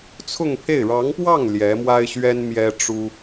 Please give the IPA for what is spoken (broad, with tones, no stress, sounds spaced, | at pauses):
t͡sʰ ʊ˥˧ ŋ pʰ e˥˩ ɪ̯ ɻ ɑ˧˥ ŋ p w ɑ˥˩ ŋ l j ɛ˧˥ m w a˥ ɪ̯ ɕ ɥ ɛ˥ n m j ɛ˥ ʈ͡ʂ u˥